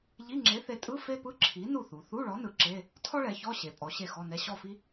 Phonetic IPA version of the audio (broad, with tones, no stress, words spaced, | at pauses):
ʎi˧˥˧ŋ͡ǁe˨˥θe˨˥tʼɯ˧˥˧ fe˥pɯ˧˥˧ǁʰi˨˥ nu˧˩ θu˩˧ θu˧˥˧ɭɔ˨˥nɯ˩˧ ǁe˧˥˧ | tʰɔ˥ɭɛ˩˧ çɔ˧˥˧ ɕe˩˧pʼɔ˩˧ ɕe˥˨xɔ˧˥˧nɛ˧˥˧ ɕɔ˥˨fi˥